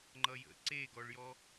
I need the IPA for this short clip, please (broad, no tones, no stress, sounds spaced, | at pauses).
ŋ͡ǃ ʌ j ə̰ ǀ e ɡ ɔ ɭ j ɔ